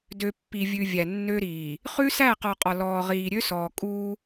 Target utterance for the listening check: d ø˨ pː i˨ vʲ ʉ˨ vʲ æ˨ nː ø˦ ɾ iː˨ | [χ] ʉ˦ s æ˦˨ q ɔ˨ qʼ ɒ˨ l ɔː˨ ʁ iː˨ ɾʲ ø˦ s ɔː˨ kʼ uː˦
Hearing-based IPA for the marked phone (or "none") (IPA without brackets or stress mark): χ